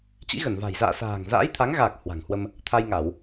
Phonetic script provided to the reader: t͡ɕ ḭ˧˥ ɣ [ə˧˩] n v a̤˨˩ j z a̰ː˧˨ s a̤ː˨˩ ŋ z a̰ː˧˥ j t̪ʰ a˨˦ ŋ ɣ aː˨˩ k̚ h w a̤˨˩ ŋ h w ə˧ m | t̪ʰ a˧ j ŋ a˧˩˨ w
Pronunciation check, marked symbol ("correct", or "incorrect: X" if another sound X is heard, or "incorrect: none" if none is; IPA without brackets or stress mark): correct